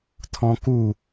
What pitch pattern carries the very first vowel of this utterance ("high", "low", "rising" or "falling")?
high